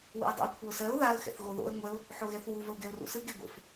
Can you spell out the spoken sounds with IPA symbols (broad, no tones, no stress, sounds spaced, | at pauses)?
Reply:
w ṵ ɪ̯ dˤ ṵ ɪ̯ kʷʰ ə ʊ̯ s ɜ ʊ̯ ð a ə̯ x ɛ̰ θ ɣ o ð o̰ ə̯ ŋʷ ɛ ʊ̯ | ħ o ɣ ɛ θ w u v ə ʊ̯ ɡ ɛ ʊ̯ r ṵ s ɯ ɡ e ɡʷ ḛ f